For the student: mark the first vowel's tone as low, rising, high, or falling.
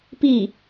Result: falling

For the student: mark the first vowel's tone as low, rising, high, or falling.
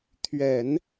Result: low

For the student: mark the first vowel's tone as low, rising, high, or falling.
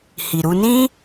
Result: low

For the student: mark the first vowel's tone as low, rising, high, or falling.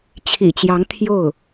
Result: low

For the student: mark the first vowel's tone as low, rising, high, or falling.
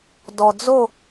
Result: low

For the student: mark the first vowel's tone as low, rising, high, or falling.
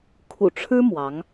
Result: low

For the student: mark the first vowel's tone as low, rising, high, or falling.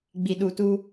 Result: low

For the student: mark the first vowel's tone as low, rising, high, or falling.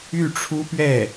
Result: falling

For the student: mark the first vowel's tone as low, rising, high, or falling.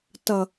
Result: low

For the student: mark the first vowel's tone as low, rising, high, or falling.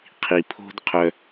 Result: low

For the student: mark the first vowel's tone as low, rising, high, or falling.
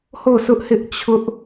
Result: falling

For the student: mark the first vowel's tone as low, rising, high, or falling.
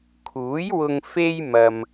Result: rising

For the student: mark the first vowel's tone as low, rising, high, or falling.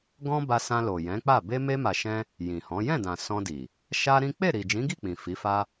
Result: high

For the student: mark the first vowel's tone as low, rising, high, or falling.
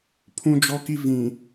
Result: low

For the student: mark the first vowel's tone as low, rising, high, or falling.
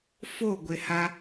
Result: falling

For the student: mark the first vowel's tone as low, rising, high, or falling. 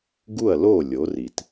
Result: falling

